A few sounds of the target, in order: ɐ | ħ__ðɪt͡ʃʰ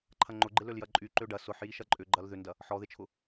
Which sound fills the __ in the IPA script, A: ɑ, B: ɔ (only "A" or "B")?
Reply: B